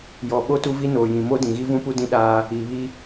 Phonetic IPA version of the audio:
j ɔ˨ ɓ o˦ t u˦ v i˦ n oː˨ j ĩ˨ m o˦ d ĩ˨ ɣ i˦ v ũ˦ p u˦ d ĩ˦ ɗ aː˦ | i˨ β i˦

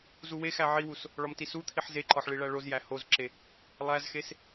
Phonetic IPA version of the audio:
z u w e x æ ʕ i w u s | ɭ ɒ m t i s u t̪ʰ i ħ z e ǃ ɒ ħ ɭ i ɭ æ ɭ o z j æ h o z ǁ e | lˠ æ z x e s

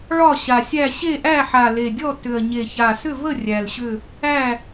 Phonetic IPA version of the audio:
ɭ ɒ˥˨ ɕ a˨˩ sʲ æ˥˨ ɕ e˥˨ ʔ æ˥˨ ħ a˨˩ l e˨˩ dʲ ɔ˥˨ t ʏ˨˩ ɐ̯ ɲ e˨˩ ç a˨˩ s ʏ˥˨ v ə˥˨ rʲ æ˨˩ l ɕ ʏ˥˨ | æ˥˨

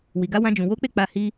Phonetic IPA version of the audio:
w i˨ ɡ a˨˦ w ã˧ d͡ʒ ũ˨ w o˨˦ k͡p e˦˨ k͡p a˧ h i˧

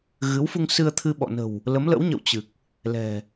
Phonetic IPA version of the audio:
ɣ ɨ˨˦ w f u˧ ŋ s ɨ˧ ə̯ t̪ʰ ɨ˧ ɓ ɔ̰˧˨ n ə̤˨˩ w | l ə˨˦ m l ə̰˧˥ w ɲ ə̰˧˨ w t͡ɕ ɨ˨˩ k̚ | l ɛ̤˨˩

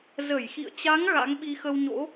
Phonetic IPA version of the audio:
z ə˧˩ j x ḭ˧˨ ə̯ t͡ɕ a˨˦ ŋ ɣ a̰˧˥ ŋ ɓ i˧ x ə˧ w ɲ o̰˧˥

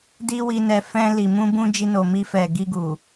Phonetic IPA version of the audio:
d i˦ w i˧ n ɛ˧ f ɛ̃˧ l i˨ m ũ˧ b ũ˧ d͡ʒ i˧ n o˨ m i˧ f ɛ˨ ɡ i˧ ɡ u˨

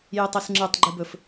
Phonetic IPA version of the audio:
j ɨ tˤ ɨ s ŋ͡ǁ ɨ tˤ ɡ͡ǃ ɨ b ɵ f

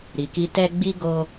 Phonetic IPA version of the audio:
ɾ i˨ k i˧ t ɛ˧ ɡ͡b i˦ ɡ o˧

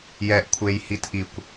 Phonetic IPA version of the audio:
j ɛ ʔ kʷʰ e j h i t ʔ i kʷ

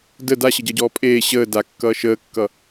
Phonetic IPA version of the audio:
d ə d a ɕ ə ɟ ʌ ɟ ɔː pʼ eː ɕ əː d a kː ʌː ʃ əː kː ʌ

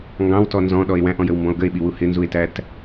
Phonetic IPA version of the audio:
ŋ ɡ ɑ̃ w t ɔ n z ɔ̃ ɗ ɔ e̯ w æ̃ ʔ ɔ̃ j ə w m b ɔ̃ o̯ ɡ ə e̯ ɓ i w u h ɪ n z u e̯ t æ t

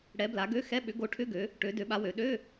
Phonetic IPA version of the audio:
ɽ ɛ˨˦ b l a˨˦ ɡ ø˧˥˧ x ɛ˧˥˧ ɓ ʏ˨˦ ɡ o˨˦ ʈʰ ʏ˧˥˧ ɡ ø˨˦ | ʈ ø˨˦ d ø˨˦ ɓ a˨˦ w ø˨˦ ɗ ø˧˥˧

